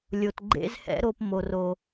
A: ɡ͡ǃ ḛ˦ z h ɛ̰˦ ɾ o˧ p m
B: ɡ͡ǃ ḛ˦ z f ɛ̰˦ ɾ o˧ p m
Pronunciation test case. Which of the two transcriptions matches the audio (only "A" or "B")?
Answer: A